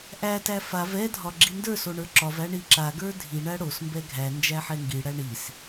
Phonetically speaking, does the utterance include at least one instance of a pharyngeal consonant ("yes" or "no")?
yes